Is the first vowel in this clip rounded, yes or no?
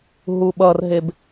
yes